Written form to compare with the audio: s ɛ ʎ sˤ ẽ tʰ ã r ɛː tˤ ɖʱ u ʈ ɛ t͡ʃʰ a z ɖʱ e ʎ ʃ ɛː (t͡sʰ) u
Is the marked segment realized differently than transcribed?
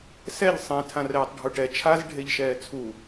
no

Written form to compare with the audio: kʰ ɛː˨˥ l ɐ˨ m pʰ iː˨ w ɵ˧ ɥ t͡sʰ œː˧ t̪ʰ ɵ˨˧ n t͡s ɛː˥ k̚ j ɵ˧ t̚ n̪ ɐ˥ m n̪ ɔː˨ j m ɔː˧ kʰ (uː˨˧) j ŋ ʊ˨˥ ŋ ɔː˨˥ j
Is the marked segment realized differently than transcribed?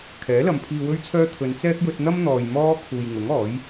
yes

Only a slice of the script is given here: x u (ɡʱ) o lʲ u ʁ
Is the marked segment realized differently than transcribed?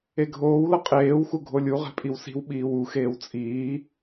no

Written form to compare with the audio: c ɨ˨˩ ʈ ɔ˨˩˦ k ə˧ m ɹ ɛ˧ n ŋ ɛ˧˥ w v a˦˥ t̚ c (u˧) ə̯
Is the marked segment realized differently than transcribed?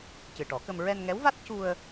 no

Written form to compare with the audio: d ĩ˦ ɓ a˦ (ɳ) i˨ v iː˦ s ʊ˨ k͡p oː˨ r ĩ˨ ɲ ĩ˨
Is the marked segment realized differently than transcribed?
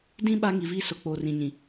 yes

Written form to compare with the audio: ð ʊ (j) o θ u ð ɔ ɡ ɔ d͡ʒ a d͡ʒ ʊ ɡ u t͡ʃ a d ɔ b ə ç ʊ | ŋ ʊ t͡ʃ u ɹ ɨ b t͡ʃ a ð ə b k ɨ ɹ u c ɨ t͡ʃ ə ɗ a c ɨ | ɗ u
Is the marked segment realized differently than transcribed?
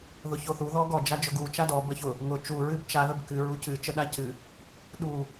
yes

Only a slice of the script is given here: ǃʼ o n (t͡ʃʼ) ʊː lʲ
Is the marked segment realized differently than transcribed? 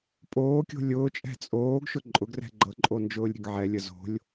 yes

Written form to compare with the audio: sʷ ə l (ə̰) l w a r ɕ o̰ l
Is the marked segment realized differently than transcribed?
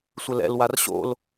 yes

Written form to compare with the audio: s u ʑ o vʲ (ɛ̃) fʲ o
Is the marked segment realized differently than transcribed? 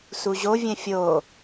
no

